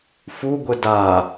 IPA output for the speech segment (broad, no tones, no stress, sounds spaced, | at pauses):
f u ɡʷ ə d a